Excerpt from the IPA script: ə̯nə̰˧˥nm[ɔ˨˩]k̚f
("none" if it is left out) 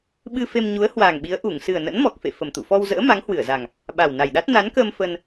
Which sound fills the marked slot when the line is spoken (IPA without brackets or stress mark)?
ɔ˨˩